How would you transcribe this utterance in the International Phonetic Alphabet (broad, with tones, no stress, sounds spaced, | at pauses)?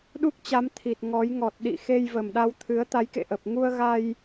ɗ u˦˥ k̚ t͡ɕ a˨˦ m t̪ʰ i˨˩ t̚ ŋ ɔ˨˦ j ŋ ɔ˨˩ t̚ ɗ ḭ˧˨ x e˧ j v ə˨˩ m ɗ a˧ w t̪ʰ ɨ˨˦ ə̯ t̪ a˨˦ j k ḛ˧˨ ʔ ə˨˩ p̚ ŋ u˧ ə̯ ɣ a˧ j